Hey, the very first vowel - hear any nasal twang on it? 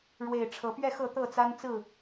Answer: no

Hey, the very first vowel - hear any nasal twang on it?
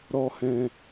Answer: no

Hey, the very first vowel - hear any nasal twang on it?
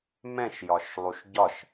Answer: yes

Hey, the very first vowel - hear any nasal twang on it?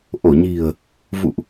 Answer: no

